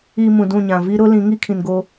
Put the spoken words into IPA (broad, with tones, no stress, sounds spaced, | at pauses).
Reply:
i˨ m ũ˨ d ũ˦˨ ɲ ã˨ v i˦ ɾ ʊ˦ l ĩ˨˦ ŋ i˦ kʰ ĩ˨ n ɡ o˦